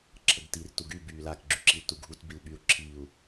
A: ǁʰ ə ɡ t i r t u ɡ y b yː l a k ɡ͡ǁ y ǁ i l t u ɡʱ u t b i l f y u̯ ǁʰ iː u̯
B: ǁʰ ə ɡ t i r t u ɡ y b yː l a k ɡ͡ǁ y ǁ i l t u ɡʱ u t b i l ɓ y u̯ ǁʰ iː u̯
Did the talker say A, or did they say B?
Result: B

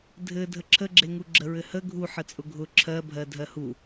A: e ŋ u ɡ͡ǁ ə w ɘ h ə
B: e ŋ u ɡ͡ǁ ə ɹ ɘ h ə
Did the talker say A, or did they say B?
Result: B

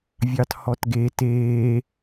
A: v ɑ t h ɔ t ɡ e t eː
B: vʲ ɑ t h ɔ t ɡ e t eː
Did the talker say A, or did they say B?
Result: B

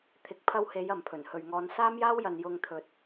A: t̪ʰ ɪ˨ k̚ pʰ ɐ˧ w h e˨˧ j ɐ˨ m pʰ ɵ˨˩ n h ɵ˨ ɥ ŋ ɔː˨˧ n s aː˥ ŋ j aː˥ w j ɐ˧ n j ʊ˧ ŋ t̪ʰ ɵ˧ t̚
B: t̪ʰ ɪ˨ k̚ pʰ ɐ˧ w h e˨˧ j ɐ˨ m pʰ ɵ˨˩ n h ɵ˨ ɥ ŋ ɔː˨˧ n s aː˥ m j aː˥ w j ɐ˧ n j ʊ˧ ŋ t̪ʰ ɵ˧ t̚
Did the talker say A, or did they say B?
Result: B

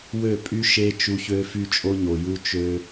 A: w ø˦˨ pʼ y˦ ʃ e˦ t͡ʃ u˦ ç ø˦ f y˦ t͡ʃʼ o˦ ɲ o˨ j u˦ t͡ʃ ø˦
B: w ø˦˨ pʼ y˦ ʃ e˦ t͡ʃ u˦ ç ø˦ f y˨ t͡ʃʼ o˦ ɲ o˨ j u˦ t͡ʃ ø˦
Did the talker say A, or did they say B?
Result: A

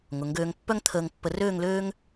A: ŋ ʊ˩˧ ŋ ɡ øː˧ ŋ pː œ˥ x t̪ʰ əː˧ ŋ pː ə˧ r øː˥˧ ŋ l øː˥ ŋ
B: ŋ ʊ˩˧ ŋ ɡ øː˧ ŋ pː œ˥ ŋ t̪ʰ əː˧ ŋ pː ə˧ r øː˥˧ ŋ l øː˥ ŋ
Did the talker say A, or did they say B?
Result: B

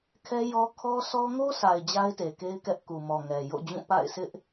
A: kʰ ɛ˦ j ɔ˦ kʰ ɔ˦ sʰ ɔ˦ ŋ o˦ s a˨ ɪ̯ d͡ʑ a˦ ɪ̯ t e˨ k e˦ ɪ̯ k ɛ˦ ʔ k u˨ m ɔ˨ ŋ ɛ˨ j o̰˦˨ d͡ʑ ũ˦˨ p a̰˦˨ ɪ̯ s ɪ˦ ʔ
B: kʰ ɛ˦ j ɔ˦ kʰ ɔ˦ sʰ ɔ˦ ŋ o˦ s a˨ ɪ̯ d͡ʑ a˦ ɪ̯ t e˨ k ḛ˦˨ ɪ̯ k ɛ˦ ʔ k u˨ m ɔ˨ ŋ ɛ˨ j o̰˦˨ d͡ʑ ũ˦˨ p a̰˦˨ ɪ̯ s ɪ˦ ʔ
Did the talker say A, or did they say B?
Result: A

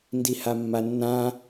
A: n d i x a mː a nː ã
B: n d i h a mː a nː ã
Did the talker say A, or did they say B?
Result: B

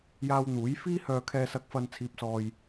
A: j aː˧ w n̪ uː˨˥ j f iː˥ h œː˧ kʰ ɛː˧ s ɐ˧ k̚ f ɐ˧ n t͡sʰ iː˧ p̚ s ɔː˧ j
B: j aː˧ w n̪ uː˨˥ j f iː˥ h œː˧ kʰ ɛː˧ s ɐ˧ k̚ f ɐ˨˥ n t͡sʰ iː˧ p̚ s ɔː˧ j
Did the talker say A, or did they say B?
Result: A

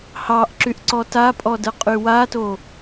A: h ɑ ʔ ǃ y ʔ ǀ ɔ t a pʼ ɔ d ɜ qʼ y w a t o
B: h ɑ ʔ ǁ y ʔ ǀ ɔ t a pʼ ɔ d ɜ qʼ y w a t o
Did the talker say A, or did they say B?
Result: B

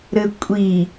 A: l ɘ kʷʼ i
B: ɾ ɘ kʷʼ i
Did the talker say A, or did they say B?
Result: B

